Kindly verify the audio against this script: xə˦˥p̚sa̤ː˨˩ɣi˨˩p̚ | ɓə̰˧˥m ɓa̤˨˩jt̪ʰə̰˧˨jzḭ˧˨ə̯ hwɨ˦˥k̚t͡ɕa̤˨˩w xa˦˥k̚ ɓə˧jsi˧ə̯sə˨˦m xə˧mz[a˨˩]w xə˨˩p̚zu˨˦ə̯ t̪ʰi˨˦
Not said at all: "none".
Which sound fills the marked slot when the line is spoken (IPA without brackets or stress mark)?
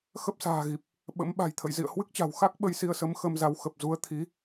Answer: a˨˦